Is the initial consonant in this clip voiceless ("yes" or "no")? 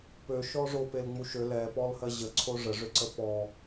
yes